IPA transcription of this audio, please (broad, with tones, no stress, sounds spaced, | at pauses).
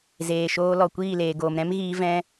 z eː˨ ʃ oː˧ l ɔ˨ kʷ iː˦˨ l eː˨ ɡ oː˨ m ɾ ɛ̃˦ m ɣ iː˧ v ɛ̃˧